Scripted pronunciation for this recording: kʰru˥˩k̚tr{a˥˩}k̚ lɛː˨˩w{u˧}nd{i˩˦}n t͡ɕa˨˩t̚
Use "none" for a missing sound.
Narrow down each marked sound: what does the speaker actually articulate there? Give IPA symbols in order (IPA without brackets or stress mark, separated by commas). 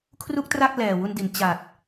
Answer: a˥˩, u˧, i˩˦